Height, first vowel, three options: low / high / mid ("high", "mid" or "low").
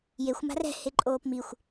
mid